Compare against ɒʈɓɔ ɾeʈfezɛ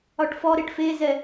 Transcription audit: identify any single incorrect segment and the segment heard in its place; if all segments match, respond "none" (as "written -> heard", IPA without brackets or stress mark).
ɓ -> f